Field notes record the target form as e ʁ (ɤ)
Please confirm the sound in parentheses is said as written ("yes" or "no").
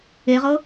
yes